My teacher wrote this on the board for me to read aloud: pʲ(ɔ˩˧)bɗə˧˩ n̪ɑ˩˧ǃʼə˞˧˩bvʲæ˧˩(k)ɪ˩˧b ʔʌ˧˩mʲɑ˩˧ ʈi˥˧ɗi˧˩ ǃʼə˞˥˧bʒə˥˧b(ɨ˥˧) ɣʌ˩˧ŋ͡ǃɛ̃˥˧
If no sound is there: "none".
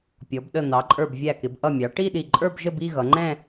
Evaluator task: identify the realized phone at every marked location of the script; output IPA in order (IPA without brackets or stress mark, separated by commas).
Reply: ɔ˩˧, k, i˥˧